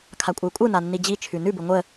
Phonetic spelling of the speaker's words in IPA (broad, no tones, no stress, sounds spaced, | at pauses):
kʰ a kʷʼ ə y̯ kʷʼ ɯ n a nː i d͡ʑ i t͡ʃʰ ʉ n ʉ b ɯ ŋʷ ə